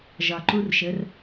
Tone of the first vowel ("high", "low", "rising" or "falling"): low